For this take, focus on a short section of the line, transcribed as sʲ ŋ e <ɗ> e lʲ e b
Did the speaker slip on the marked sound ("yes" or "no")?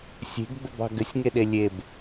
no